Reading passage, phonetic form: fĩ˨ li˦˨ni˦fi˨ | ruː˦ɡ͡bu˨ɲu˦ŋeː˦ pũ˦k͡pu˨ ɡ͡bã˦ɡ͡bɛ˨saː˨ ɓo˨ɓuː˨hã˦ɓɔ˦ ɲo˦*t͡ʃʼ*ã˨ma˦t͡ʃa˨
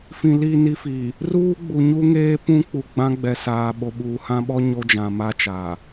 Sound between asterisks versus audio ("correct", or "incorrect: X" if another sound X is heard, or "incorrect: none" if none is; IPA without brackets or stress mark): incorrect: d͡ʒ